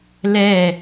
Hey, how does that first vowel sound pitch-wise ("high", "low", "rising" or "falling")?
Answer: falling